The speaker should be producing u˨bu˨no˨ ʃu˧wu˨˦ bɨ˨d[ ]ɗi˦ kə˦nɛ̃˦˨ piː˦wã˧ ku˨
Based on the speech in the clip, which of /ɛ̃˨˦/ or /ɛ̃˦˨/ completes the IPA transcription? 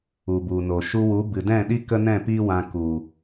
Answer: ɛ̃˦˨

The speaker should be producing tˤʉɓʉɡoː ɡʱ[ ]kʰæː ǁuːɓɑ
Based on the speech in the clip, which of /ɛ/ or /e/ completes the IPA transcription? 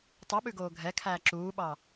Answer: ɛ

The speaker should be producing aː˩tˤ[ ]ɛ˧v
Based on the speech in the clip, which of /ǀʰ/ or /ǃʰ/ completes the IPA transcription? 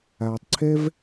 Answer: ǀʰ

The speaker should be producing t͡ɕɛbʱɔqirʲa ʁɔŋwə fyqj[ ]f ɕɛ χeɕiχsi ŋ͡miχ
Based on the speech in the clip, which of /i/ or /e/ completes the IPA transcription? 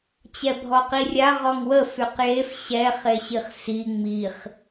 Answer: e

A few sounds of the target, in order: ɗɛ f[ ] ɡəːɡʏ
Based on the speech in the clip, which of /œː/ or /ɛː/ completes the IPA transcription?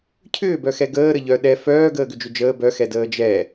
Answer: œː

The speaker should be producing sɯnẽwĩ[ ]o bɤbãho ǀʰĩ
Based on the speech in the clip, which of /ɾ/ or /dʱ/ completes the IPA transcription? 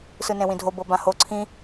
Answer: dʱ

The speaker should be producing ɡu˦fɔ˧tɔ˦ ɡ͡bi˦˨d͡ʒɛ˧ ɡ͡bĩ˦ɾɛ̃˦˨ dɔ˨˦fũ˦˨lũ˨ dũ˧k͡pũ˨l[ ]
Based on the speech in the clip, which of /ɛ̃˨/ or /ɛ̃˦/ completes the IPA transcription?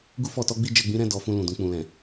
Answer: ɛ̃˨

